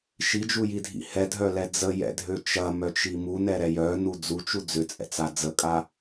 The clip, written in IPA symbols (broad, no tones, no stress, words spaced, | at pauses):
ʃid͡ʒujidʱḭ hɛdʱœlɛ d͡zəjɛ̰dʱø t͡ʃɐmœt͡ʃi munɛɾɛ jœnu d͡zut͡ʃu d͡zʏt͡sʼɛ̰t͡sa d͡zəkʼa